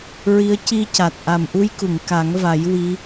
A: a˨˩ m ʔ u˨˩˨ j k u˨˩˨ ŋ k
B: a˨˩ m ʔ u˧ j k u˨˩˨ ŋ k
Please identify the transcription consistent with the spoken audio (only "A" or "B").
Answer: B